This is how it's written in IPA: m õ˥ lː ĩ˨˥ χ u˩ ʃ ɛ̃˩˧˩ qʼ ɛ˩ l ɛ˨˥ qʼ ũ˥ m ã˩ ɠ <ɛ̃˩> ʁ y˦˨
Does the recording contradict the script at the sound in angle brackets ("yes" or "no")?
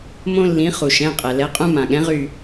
yes